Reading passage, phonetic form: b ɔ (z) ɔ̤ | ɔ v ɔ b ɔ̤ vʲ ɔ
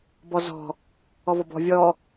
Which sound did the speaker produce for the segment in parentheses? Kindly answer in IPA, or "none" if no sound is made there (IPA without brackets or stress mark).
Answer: z